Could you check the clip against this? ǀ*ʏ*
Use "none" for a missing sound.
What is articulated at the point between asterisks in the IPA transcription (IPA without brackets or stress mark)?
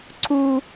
u